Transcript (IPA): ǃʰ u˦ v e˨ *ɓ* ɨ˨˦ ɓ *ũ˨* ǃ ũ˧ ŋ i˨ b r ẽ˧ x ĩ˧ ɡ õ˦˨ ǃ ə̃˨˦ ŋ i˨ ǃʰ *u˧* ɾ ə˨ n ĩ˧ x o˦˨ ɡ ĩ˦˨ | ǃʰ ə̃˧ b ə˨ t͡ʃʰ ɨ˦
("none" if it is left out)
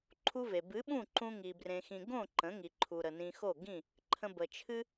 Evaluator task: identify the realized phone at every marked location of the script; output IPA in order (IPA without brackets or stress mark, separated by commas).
b, ũ˦˨, u˨